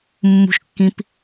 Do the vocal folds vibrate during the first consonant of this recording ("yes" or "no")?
yes